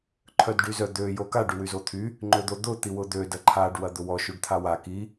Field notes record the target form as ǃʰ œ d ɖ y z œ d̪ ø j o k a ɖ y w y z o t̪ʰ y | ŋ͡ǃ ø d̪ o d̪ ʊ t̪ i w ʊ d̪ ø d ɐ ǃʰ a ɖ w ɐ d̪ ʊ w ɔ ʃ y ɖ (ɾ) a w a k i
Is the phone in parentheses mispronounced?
yes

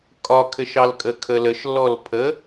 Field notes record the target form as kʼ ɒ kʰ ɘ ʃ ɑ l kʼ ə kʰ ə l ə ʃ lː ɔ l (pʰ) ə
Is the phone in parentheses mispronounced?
no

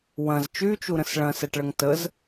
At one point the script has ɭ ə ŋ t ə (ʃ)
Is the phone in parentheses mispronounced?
yes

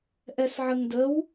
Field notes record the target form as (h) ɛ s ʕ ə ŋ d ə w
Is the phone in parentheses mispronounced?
yes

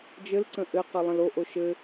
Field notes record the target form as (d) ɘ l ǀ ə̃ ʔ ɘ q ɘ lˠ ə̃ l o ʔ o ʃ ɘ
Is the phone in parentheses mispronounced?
yes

